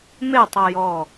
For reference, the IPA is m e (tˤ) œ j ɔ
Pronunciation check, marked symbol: correct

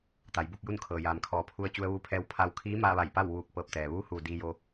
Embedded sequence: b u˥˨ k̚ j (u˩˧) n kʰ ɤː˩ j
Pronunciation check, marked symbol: incorrect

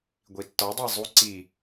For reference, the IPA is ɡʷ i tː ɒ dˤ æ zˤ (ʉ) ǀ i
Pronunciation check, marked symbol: incorrect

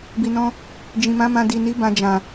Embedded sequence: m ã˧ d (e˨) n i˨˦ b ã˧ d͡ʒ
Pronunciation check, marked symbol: incorrect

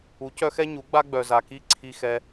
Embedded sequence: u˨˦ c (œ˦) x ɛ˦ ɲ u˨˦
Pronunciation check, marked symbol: correct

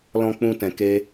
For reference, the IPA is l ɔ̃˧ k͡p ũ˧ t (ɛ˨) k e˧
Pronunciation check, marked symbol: incorrect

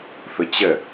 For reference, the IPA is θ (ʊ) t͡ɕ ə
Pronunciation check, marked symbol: correct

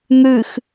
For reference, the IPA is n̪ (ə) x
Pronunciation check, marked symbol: incorrect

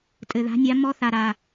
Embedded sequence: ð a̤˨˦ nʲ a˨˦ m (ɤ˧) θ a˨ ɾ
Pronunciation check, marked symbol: incorrect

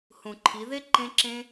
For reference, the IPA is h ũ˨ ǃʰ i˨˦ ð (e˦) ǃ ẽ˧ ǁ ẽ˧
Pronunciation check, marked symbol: correct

